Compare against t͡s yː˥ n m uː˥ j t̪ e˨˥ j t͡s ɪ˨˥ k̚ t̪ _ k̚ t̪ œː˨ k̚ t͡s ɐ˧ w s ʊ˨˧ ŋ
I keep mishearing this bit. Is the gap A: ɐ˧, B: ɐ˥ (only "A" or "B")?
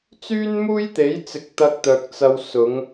A